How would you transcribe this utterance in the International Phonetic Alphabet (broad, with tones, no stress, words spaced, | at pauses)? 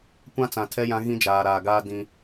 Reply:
kʷã˦t͡sã˨ tʰɛ˦jã˦ ɣĩ˦d͡ʒaː˨ɾaː˨ɡaː˦ dĩ˦